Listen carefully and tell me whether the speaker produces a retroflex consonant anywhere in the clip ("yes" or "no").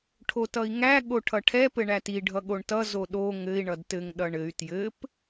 yes